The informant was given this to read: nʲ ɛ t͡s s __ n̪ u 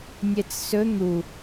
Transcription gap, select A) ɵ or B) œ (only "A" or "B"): A